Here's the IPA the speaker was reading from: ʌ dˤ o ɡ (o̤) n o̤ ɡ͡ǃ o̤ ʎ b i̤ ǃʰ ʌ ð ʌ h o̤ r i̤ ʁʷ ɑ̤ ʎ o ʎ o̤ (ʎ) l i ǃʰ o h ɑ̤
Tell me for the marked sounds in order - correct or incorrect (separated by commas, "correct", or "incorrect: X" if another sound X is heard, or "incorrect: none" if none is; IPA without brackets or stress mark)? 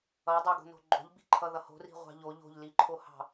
correct, correct